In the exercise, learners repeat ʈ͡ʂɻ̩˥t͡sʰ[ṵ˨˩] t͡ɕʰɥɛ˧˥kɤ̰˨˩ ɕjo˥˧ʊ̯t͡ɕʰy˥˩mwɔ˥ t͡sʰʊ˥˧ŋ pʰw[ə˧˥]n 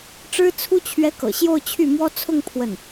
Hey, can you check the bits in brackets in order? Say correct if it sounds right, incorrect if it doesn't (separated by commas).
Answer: incorrect, incorrect